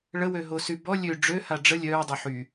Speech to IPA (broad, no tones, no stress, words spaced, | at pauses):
ɭəwøɦosy bɔ lʲø ɖ͡ʐøha ɖ͡ʐə lʲœːdˤo ħy